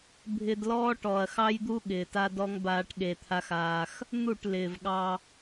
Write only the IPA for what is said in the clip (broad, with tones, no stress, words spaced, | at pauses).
bʱɪ˧dlɔː˦ʈɔ˨ɐ̯ xɑ˦jd̪u˦ ɠɪː˨ta˦dɔ˦ŋ baː˦ʈɠe˧t̪ʰa˦xaː˧x | n̪u˦˨ʈlɪː˨vɠɑ˧